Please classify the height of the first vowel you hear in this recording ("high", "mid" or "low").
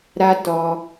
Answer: low